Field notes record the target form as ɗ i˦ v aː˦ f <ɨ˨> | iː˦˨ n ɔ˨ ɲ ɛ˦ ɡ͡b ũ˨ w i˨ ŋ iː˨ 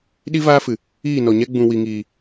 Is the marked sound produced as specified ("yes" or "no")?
yes